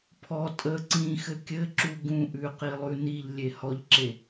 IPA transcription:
pʰɔ tʼə ǀĩxɘ kʲɘǁu ɡũʔʉqilˠʉ niʎlʲe hɔʎǁe

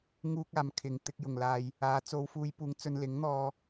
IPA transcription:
ŋuː˧k̚aː˨˩m kʰɪ˨˩ŋ t̪ɪ˧k̚ jʊ˨˩ŋ laː˨j | aː˨˧t͡so˧w fuː˨˧j puː˨˧ŋ t͡sɵ˧nlɪ˨˥ŋn̪ɔː˧

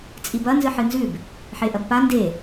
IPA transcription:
t͡sʼibɐ nzɨħɨnzʉb | ħeʔɐbpa nde

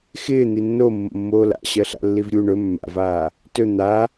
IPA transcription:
xɪː n̪inːomːo̰ mːoːla̰ ɕɜɬa̰lːivɾʲu ɳɵ mːa̰vaː | tɵ n̪a

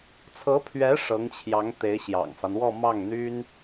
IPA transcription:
t͡sʰɤ˧˥pʰɥɛ˧˥ ʂɤ˧˥ŋt͡ɕʰjɑ˧˥ŋ t̪e˧˥ɪ̯ɕjɑ̰˨˩ŋfa˦n wɔ˥˧mɑ˥˩ŋn̪y˥n

